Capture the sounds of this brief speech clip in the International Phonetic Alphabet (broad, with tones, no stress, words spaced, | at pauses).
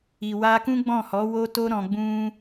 i˨wa˧kũ˦ ɡ͡bɔ̃˦˨hɔ˨˦wo˦to˦ ɾɔ̃˧ɡ͡bũ˦